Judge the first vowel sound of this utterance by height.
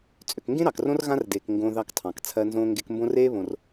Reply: mid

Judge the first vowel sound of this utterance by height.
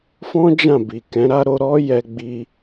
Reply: mid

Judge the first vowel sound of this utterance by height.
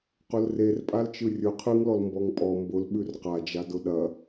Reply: high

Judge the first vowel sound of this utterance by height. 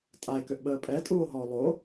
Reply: low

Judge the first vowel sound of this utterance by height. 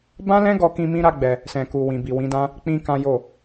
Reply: low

